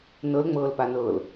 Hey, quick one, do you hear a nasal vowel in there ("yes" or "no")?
no